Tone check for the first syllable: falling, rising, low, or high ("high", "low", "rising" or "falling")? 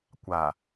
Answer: low